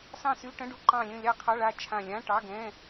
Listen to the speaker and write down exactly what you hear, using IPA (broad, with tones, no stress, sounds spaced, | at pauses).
s ɑ̃˦˨ s y˧˥˧ ʈ ə̃˧˥˧ ɖ u˦˨ ǃ ɑ̃˦˨ lʲ ə̃˦˨ lʲ ɑ˦˨ qʰ ɑ˧˥˧ ɭ a˦˨ t͡ʃʰ ã˦˨ lʲ ã˧˥˧ ʈ ɑ˧˥˧ ɡ ɛ̃˧˥˧